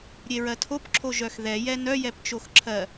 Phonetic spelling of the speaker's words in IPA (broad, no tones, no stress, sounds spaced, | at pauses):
ɾʲ e ɹ ɜ tʰ o p ǁʰ o ʒ œ x ð ɛ j ɛ n œ j ɛ p t͡ʃ o x ǁʰ ɜ